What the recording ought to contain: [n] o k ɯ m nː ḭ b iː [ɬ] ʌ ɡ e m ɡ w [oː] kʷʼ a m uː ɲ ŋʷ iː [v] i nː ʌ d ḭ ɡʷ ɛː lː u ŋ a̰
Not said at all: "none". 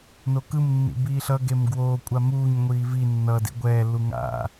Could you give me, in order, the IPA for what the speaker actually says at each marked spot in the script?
n, ɬ, oː, v

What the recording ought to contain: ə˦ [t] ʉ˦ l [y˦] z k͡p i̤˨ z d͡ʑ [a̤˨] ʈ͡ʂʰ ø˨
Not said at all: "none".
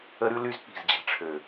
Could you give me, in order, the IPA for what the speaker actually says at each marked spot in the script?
ɾ, y˦, a̤˨

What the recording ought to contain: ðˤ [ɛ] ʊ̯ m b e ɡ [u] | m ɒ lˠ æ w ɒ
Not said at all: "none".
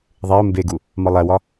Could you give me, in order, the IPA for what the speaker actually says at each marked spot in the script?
e, u

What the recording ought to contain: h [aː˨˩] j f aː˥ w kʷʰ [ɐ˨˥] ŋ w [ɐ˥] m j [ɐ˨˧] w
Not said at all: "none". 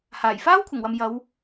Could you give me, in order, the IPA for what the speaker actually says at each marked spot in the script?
aː˨˩, ɐ˨˩, ɐ˨, ɐ˨˧

